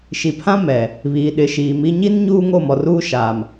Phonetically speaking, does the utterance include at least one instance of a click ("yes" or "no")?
no